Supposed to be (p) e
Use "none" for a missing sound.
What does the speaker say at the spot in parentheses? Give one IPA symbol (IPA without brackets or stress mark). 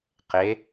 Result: q